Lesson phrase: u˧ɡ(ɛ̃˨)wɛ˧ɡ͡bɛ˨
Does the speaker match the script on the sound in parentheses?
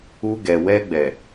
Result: no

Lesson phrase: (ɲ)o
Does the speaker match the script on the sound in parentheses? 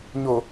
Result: yes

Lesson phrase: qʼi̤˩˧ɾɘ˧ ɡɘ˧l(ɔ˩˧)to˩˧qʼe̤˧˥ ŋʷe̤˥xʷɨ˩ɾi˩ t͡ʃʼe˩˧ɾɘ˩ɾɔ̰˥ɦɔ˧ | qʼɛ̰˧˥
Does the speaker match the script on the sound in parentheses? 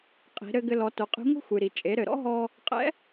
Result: yes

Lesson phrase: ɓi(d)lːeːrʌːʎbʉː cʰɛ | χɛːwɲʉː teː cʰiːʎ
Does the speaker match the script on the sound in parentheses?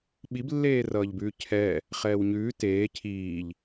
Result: no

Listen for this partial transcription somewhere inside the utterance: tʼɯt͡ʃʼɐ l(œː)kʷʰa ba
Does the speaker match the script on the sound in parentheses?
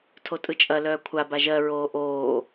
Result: yes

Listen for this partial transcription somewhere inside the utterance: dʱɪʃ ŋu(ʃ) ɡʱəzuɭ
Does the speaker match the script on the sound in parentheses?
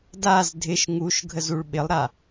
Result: yes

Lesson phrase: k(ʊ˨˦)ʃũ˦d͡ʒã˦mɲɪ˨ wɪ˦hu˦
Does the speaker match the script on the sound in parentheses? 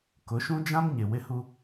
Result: yes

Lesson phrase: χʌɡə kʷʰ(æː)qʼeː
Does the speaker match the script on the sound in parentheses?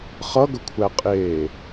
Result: no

